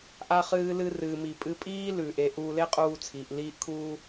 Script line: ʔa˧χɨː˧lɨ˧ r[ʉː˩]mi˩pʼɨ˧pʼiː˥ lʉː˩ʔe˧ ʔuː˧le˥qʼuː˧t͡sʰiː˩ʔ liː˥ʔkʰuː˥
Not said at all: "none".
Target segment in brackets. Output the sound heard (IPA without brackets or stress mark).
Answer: ɨː˩